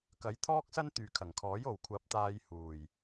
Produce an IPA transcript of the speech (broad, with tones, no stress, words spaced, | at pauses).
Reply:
kɐ˨˥j t̪ʰɔː˥k̚sɐ˥n t̪yː˨kʰɐ˨˩ŋkʰɔː˨˥j o˨˩wkʷʰɐ˨˥p̚t̪aː˧j huː˨˩j